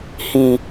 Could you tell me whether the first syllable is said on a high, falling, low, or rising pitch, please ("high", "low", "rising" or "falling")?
low